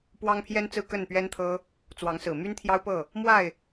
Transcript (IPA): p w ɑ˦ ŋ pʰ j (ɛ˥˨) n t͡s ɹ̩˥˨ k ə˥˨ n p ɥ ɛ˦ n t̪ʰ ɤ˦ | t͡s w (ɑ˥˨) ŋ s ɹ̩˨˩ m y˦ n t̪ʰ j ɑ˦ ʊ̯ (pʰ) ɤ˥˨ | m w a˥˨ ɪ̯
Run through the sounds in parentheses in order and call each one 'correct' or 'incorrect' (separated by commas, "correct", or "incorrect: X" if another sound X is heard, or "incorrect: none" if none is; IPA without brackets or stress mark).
incorrect: ɛ˦, incorrect: ɑ˨˦, incorrect: p